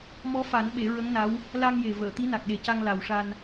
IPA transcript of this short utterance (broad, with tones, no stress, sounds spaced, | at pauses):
m ɔ˧˥ f a˨˩˦ n ɓ e˨˩˦ ɹ ə˧˥ ŋ n a˧˥ w | l a˧ ŋ j e˨˩ v əː˨˩˨ t̪ i˧˥ n a˨˩ k̚ ɗ e˨˩ c a˧ ŋ l a˨˩ w ʂ a˧ n